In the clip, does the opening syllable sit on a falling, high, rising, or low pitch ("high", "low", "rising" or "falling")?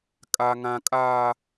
high